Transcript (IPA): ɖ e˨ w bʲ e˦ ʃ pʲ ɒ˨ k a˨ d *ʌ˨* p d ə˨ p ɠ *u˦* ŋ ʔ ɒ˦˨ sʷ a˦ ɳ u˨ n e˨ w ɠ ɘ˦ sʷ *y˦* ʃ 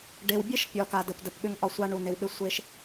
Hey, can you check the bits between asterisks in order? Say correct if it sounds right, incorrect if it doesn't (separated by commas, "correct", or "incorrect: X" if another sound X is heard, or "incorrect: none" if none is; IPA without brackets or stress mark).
incorrect: ə˨, incorrect: ʏ˦, incorrect: e˦